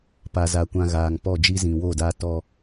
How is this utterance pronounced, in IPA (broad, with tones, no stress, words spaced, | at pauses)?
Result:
pa˨za˨ kʷã˨ ɣaː˨ŋpɔ˦˨d͡ʒi˦ zĩ˨wo˦˨da˦ tɔ˦